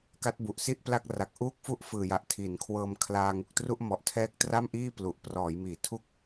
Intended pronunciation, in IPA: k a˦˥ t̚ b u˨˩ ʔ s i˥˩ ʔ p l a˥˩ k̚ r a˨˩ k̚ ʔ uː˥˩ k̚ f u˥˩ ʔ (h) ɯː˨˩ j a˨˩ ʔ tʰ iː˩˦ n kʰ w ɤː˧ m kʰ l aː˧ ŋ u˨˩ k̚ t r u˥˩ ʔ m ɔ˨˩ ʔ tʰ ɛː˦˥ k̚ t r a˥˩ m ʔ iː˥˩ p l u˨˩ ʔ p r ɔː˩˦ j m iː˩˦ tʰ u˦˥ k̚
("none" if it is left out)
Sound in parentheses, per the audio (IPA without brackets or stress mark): f